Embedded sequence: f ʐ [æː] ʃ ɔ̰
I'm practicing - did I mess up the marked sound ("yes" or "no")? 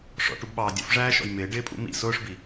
no